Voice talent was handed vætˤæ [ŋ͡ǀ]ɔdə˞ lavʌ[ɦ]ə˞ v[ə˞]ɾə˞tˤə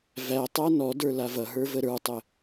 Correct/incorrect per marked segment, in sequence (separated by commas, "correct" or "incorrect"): incorrect, correct, incorrect